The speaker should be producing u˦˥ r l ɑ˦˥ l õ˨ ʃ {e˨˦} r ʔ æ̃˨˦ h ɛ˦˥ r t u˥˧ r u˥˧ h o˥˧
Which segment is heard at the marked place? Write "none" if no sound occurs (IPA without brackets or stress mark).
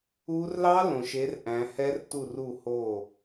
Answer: e˨˦